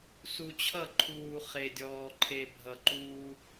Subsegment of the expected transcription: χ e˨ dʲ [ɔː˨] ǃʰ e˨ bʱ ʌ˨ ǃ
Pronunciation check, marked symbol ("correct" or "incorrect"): correct